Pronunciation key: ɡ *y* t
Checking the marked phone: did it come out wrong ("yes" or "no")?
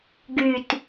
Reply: no